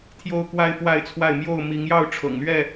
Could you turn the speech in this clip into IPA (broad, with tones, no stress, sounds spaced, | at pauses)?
t̪ʰ j o˦ ʊ̯ k w a˦ ɪ̯ f w a˥˨ ɪ̯ t͡sʰ w a˥˨ ɪ̯ m j o˥˨ ʊ̯ m i˨˦ ŋ j ɑ˥˨ ʊ̯ ʈ͡ʂʰ ɤ̰˨˩ ŋ l ɥ ɛ˥˨